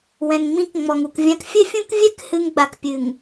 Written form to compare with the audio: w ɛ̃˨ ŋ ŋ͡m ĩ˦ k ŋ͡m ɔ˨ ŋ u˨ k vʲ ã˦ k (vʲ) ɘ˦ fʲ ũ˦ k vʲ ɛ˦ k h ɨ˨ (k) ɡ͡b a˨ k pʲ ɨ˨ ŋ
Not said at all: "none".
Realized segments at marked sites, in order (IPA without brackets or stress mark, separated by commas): fʲ, ŋ